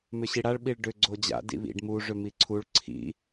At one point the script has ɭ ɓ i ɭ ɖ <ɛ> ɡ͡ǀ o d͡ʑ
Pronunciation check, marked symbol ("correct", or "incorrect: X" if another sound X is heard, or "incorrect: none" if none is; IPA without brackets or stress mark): incorrect: ʏ